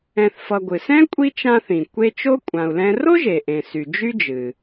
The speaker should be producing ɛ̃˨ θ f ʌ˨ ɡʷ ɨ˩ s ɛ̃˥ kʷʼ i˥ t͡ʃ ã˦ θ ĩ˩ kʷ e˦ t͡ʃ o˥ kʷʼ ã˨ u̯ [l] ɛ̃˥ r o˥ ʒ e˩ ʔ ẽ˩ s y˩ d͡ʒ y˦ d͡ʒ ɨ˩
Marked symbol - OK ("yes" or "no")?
yes